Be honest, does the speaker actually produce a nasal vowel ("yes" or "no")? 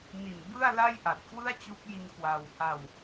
no